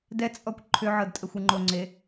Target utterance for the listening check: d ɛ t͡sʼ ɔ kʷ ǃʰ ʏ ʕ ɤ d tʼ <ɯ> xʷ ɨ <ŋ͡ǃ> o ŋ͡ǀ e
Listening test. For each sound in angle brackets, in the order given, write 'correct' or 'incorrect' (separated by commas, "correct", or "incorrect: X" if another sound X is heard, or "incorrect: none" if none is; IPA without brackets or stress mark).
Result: incorrect: ə, correct